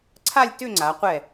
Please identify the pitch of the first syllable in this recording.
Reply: falling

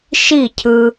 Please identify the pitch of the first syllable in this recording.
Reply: falling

